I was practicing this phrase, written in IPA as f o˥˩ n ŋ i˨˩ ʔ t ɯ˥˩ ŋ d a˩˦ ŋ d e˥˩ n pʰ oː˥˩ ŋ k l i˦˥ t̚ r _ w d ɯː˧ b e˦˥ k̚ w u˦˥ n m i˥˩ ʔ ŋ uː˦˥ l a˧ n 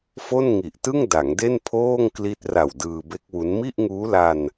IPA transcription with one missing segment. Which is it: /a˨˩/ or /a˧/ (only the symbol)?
a˨˩